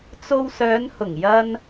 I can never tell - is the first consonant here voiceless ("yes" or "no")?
yes